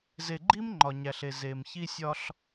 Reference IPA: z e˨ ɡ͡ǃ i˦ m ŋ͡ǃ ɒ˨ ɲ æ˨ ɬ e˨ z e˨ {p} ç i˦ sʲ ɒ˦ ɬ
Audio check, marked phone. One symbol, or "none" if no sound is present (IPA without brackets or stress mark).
m